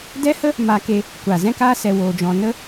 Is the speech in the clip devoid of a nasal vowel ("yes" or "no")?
no